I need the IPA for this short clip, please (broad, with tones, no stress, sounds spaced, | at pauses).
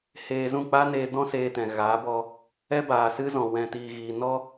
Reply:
h eː˧ z ũ˦˨ k͡p aː˦ n eː˧ d ɔ̃˦ s eː˧ t ɛ̃˨ ɣ aː˨˦ b ɔ˧ | ɛ˦ b aː˨ s ɨ˦ z ɔ̃˨ w ɛ̃˨ t iː˨ ɣ iː˨ n ɔ˦